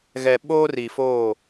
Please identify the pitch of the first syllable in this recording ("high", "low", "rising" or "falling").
low